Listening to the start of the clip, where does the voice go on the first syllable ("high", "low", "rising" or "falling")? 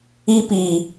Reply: high